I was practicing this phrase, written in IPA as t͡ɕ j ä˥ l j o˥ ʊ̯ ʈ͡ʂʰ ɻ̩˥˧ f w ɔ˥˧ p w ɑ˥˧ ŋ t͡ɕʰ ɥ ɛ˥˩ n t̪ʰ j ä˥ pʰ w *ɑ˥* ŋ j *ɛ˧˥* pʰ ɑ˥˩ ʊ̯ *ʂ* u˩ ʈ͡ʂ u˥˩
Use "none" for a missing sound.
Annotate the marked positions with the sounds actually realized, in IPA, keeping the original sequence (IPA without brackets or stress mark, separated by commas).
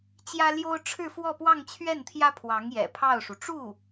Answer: ɑ˧˥, ɛ̰˨˩, ʂ